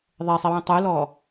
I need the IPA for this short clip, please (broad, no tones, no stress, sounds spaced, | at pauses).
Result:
ðˤ ɛ sˤ i w ĩ tˤ ɨ l ɔ